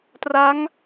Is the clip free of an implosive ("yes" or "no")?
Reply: yes